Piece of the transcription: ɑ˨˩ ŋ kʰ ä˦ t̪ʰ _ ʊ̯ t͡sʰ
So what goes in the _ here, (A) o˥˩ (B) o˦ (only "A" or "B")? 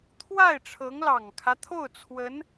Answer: A